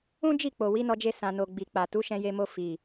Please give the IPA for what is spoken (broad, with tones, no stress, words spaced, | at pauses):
ũ˦d͡ʒi˦˨ k͡po˨wi˨˦nɔ˧d͡ʒe˧ sã˨no˨ ɡ͡bi˨k͡pa˨ tu˨˦ʃɛ̃˧je˧mo˧ fi˨